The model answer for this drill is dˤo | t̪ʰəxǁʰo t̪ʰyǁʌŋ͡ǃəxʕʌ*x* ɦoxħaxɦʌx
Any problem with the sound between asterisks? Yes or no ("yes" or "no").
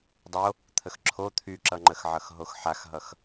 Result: no